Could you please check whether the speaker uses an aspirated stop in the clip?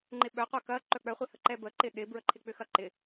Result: yes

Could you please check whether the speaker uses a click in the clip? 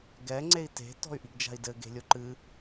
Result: yes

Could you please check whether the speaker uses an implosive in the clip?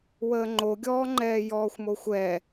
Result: no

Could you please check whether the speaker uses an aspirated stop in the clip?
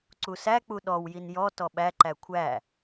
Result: yes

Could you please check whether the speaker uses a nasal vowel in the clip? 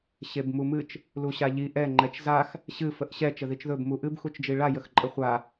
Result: no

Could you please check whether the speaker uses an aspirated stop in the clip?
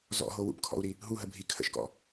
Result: yes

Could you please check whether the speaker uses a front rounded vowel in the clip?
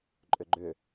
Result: yes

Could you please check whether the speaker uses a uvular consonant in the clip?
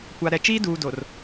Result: no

